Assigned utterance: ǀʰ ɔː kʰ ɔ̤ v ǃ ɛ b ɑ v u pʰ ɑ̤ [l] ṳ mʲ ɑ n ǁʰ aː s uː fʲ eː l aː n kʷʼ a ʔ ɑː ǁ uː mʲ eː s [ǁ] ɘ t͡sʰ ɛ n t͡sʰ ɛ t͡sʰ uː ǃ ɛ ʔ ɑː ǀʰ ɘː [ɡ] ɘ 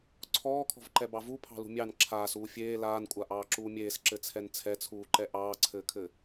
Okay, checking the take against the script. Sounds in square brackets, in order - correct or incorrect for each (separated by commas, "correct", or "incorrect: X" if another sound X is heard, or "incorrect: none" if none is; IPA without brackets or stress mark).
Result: correct, correct, incorrect: kʰ